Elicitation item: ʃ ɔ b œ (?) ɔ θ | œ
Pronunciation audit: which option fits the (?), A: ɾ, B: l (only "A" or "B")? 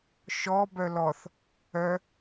B